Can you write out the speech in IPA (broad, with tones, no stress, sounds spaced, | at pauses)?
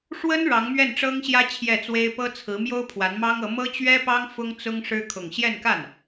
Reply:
ʂ w ə˥ n ɻ ɑ˧˥ ŋ m ɥ ɛ˥˩ n ʈ͡ʂ ɤ˥ ŋ ɕ j ä˥ t͡ɕʰ j ɛ˥˩ t͡s w e˥ ɪ̯ p ɤ˥ t͡sʰ ɹ̩˧˥ m j o˥ ʊ̯ pʰ w a˧˥ n m ɑ˥ ŋ ɤ˧˥ m ɤ˥ t͡ɕ ɥ ɛ˥ p ɑ˥ ŋ f ʊ˥ ŋ t͡s ʊ˥ ŋ ʂ ɻ̩˥ kʰ ʊ˥˧ ŋ ɕ j ɛ˥˧ n k a˥˩ n